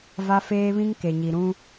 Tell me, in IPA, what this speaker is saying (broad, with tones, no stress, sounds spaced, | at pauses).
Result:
v a˦ f eː˦ β ĩ˦ ŋ k e˨ ɲ i˨ ɾ ũ˦